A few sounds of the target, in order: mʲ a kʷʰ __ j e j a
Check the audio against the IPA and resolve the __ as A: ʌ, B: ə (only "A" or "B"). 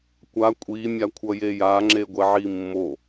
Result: A